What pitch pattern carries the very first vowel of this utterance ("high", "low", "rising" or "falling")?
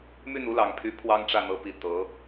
falling